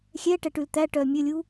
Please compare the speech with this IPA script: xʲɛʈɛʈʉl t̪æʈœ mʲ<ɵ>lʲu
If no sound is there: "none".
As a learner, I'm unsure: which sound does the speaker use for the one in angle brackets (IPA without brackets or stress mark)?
ɵ